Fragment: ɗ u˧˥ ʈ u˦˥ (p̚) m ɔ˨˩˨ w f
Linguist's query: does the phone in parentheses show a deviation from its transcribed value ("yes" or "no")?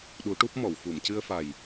no